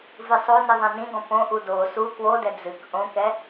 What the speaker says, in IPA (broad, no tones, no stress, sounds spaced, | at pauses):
v ɨ sˤ o n ɨ ðˤ ɛ̃ n ĩ ɡ ɔ̃ p õ ʔ u d o s u k w o d ɛ d͡z ɨ k ʔ õ k ɛ